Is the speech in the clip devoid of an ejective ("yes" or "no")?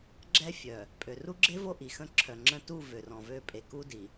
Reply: no